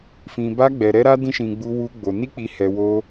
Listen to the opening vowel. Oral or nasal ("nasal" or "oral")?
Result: nasal